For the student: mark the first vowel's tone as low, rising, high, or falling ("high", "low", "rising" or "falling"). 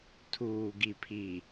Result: low